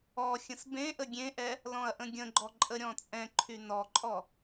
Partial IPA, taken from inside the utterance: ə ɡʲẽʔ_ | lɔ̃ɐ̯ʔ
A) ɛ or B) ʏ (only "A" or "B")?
A